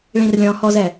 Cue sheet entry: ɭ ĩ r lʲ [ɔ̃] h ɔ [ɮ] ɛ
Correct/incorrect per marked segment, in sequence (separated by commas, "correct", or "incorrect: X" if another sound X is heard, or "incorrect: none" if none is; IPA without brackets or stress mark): correct, incorrect: z